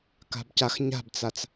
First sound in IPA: k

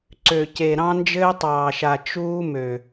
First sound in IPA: ǀ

